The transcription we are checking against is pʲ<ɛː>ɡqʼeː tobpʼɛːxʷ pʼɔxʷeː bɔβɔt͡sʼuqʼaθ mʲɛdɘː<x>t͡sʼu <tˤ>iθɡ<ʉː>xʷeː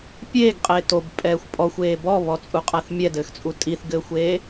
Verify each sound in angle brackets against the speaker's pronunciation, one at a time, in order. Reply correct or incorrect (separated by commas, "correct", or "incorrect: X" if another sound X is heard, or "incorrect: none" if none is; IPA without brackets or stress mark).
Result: incorrect: eː, correct, incorrect: tʼ, incorrect: ɘː